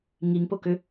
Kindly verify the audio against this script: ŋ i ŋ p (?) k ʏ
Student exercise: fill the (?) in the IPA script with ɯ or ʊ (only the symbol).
ʊ